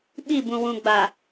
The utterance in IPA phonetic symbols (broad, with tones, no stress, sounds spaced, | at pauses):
ɓ i˦˨ b ũ˨ w ũ˨ ɡ͡b a˨